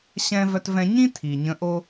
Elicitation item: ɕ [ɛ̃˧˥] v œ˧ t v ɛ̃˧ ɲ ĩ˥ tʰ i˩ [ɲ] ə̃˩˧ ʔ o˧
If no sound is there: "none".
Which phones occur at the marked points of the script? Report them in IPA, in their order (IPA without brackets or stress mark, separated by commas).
ɛ̃˧, ɲ